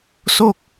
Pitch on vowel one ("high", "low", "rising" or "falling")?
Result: falling